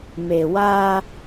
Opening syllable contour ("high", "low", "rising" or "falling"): low